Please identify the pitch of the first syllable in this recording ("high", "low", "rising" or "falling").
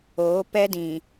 rising